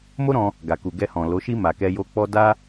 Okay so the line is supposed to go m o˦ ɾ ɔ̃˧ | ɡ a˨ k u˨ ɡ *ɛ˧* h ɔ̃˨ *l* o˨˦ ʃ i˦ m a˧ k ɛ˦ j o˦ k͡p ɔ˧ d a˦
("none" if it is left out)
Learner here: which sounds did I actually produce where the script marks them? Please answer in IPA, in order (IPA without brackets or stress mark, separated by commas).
ɛ˧, l